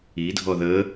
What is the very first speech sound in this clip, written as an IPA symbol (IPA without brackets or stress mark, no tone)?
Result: i